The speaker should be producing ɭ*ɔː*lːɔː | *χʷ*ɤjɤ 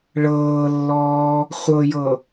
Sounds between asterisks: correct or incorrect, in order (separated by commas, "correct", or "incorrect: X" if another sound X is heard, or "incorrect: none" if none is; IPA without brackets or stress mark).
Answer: incorrect: ɤː, correct